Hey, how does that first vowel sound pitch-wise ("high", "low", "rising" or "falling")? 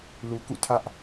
low